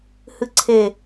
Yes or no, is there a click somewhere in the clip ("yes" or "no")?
yes